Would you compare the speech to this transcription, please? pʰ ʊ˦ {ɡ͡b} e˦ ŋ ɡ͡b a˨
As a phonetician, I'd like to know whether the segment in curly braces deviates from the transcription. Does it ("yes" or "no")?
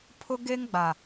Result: yes